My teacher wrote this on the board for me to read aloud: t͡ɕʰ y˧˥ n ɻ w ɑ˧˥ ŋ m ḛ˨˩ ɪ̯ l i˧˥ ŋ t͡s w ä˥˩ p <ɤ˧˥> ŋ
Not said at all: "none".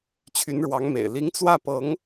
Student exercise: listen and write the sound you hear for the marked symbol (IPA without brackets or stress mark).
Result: ɤ˧˥